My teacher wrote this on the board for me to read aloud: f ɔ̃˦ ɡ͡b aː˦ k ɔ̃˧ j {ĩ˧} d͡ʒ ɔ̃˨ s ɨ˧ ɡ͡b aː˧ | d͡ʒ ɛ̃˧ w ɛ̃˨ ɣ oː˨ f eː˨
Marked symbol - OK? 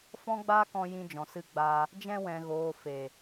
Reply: yes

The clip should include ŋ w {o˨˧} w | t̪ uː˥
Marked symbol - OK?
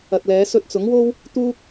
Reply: no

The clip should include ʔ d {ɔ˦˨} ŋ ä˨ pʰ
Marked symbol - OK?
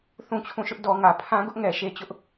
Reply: no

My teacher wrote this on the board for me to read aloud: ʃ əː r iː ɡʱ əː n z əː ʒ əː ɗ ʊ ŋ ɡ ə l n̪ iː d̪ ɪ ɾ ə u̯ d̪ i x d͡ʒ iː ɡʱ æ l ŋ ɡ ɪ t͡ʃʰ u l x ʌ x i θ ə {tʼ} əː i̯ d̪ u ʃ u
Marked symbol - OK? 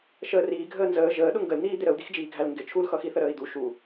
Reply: no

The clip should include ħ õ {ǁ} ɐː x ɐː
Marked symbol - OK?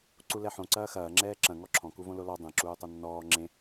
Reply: no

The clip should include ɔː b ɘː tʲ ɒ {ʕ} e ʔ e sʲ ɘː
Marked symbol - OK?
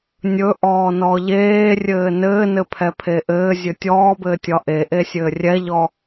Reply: no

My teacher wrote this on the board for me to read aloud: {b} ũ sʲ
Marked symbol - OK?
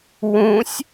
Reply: no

